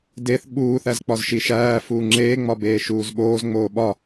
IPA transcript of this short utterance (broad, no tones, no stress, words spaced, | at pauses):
deθ ɓuːθæzk͡pɒzʃi ʃæː fuːŋ͡ǁeːŋ͡mɒbeː ʃuːzɓoːz ŋ͡moːɓɒ